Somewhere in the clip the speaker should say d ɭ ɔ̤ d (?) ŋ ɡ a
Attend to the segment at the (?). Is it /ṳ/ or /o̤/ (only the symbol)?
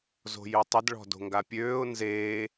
o̤